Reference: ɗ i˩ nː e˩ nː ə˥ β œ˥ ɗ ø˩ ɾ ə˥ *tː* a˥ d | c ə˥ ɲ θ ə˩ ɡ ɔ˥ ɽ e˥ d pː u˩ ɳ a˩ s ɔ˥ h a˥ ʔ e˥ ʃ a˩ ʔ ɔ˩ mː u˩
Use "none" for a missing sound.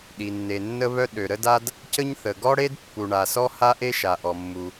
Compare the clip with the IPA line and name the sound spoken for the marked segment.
d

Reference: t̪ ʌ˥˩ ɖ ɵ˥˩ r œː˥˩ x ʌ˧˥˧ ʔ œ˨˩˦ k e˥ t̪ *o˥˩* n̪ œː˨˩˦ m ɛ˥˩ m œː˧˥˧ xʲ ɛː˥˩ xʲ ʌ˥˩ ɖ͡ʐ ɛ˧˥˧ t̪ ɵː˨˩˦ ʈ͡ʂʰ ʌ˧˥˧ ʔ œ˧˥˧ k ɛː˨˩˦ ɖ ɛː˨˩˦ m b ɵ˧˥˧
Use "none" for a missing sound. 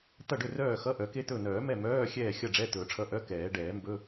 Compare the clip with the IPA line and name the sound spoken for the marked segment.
ɵ˥˩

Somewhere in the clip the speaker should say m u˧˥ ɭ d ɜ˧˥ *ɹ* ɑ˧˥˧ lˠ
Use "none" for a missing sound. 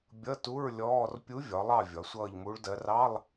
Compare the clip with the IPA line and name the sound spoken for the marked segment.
r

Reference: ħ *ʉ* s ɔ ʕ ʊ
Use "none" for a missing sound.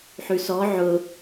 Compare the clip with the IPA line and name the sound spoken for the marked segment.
ʉ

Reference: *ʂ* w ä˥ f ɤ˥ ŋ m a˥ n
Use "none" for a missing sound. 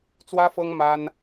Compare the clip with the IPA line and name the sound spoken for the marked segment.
t͡s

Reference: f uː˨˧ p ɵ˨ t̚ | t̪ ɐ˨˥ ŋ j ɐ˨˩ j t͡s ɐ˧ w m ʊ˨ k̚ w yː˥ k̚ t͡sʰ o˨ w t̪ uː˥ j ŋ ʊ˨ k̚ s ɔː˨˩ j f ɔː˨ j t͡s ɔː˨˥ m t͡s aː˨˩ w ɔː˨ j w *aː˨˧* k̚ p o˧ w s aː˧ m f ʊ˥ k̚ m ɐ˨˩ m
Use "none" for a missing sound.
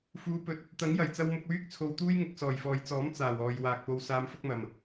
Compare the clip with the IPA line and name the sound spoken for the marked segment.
aː˨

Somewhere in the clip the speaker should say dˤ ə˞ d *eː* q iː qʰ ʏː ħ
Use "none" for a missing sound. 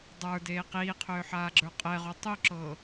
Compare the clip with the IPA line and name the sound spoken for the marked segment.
eː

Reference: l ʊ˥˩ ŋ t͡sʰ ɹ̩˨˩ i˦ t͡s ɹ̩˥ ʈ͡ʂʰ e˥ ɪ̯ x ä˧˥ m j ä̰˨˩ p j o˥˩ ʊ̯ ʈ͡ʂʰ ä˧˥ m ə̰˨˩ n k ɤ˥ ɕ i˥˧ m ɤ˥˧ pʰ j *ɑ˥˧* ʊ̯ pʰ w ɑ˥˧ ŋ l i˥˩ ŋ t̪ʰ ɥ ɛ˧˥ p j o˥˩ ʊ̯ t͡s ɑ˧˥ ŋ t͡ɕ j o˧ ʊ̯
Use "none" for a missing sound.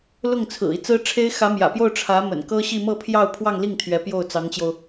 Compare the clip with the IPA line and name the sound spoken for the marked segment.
ɑ˥˧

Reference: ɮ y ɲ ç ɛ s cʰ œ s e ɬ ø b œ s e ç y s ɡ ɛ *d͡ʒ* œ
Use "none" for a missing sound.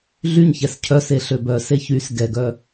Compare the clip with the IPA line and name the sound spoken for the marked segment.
ɡ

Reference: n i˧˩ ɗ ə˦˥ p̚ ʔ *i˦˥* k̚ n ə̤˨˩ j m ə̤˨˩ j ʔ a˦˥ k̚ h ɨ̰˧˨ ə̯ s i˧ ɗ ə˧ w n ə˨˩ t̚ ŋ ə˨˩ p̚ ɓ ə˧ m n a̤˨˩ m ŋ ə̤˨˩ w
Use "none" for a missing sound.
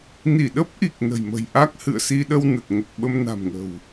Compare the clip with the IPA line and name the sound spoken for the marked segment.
i˨˩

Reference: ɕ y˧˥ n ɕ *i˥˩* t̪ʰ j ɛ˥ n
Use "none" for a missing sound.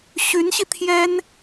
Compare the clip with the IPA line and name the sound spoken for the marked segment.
i˧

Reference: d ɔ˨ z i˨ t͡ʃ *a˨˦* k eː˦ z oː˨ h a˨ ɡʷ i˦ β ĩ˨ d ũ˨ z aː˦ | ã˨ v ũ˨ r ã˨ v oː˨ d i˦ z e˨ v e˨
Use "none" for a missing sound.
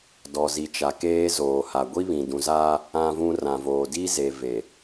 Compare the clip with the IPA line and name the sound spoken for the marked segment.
a˨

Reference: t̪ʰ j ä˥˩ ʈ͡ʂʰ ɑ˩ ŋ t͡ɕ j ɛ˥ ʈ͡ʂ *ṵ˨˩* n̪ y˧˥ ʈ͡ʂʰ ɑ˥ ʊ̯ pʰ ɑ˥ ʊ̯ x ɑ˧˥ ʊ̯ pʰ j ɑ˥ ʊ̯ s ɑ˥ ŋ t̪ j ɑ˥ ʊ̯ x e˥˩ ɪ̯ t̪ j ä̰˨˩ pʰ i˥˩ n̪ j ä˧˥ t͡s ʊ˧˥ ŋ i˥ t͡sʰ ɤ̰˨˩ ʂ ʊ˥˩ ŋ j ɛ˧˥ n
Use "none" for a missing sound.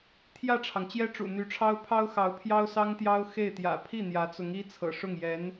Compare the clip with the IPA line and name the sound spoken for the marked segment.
ṵ˨˩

